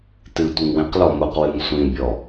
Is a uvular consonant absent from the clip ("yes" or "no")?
no